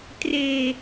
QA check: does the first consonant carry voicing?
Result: no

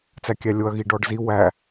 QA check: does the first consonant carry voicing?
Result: no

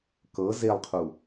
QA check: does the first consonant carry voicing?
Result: no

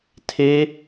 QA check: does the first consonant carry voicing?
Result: no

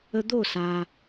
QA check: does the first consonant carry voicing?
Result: yes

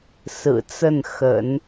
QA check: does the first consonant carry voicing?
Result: no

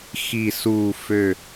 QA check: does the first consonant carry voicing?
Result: no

